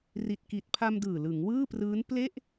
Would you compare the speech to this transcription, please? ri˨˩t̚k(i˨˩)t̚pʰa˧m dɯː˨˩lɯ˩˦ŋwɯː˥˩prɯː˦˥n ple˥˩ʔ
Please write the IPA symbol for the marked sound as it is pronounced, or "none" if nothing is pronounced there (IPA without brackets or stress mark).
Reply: i˨˩